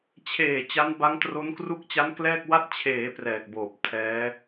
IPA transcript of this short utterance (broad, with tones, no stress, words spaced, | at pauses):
t͡ɕʰeː˨˩ t͡ɕa˦˥nba˦˥ŋtro˦˥n kru˦˥k̚t͡ɕa˦˥n klɛː˥˩k̚wa˥˩t̚ t͡ɕʰeː˩˦ prɛː˨˩k̚boː˨˩p̚ tʰɛː˦˥